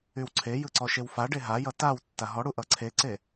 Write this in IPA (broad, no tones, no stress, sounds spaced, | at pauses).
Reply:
y w ǀʰ e j ɯ ǀ ɔ ʃ e w f a ɖ e ɦ a j ʌ t a w tː a ɦ ɔ ɽ u ʔ ʌ ǀʰ e ǀ e